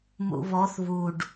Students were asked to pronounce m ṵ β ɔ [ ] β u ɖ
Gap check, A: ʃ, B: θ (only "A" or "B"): B